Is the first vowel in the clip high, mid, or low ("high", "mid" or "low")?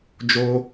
mid